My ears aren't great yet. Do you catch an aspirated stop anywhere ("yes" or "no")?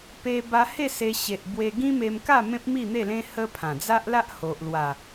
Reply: yes